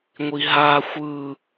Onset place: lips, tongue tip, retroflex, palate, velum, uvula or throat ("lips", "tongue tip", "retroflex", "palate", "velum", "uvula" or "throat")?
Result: velum